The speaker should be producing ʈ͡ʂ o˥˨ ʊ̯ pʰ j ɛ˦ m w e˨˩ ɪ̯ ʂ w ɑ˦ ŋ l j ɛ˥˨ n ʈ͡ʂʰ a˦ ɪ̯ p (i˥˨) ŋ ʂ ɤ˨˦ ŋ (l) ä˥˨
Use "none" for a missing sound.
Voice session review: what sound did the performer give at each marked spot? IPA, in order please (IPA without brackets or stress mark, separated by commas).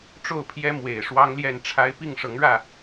i˥˨, ɻ